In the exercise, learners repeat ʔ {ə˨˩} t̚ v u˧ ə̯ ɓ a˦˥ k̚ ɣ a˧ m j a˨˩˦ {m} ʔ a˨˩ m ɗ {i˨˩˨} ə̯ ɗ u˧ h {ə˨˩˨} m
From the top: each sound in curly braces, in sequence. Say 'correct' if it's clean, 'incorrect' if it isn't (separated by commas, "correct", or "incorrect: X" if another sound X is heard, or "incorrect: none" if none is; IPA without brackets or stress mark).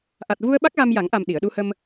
incorrect: a˨˩, incorrect: ŋ, correct, incorrect: ə˧